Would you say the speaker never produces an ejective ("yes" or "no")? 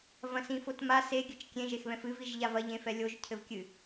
yes